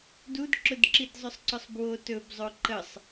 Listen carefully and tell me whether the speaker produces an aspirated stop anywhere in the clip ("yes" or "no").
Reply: no